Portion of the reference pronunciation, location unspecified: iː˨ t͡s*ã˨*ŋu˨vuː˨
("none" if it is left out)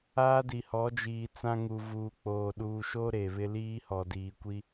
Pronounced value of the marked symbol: ã˦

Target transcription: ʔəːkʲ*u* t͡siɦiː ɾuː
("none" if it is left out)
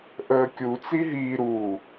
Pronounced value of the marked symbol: u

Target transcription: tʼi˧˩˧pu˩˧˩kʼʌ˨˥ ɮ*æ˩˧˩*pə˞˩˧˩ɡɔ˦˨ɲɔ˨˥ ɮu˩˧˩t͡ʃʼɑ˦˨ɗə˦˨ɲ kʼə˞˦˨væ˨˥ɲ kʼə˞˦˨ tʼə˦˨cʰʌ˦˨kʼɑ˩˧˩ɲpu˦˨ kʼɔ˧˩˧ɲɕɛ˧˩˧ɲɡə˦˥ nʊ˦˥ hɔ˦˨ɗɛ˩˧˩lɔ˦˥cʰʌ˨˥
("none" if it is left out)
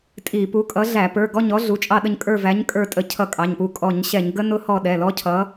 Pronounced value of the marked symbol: æ˧˩˧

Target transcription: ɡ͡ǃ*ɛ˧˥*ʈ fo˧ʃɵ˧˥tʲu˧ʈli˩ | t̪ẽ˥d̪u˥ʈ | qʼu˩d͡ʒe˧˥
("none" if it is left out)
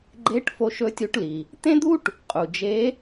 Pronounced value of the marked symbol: e˧˥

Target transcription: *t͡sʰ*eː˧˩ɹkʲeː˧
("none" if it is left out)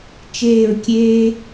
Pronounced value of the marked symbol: t͡ʃ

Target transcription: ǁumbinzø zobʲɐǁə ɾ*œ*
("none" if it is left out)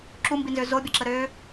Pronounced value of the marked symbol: ø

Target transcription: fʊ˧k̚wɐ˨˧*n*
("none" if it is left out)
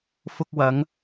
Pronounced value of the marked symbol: ŋ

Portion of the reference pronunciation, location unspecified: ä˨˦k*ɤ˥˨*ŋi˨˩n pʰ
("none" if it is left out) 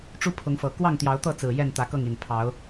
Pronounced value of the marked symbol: ɤ˥˨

